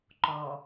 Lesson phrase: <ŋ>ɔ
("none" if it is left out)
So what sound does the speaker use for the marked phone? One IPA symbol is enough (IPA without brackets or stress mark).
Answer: ǃ